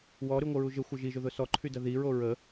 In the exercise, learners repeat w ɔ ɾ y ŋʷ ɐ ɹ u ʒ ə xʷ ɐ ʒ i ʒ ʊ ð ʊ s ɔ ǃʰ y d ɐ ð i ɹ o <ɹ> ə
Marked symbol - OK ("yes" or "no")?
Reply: yes